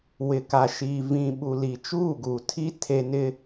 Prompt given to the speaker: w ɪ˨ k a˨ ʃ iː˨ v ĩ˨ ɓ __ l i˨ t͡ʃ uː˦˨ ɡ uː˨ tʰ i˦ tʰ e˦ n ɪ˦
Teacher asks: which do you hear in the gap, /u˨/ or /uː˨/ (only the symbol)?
u˨